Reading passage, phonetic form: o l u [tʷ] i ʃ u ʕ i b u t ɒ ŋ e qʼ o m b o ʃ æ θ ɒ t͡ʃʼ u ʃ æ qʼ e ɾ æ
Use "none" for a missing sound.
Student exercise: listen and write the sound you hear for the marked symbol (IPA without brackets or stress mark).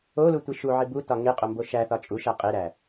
tʷ